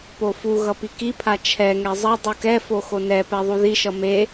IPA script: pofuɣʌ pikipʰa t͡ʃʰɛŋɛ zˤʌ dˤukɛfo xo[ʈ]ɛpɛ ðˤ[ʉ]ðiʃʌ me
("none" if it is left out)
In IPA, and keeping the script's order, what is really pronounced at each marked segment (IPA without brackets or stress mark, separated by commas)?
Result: n, u